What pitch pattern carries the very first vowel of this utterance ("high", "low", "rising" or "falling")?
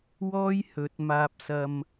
high